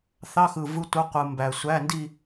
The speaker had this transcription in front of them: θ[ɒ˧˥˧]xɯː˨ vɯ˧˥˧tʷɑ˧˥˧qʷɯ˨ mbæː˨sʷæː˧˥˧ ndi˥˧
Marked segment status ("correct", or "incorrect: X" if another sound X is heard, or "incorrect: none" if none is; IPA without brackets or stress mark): incorrect: ɑ˧˥˧